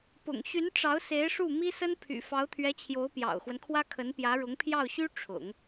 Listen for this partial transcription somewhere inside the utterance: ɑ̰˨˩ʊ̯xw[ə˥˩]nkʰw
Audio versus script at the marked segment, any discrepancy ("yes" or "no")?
yes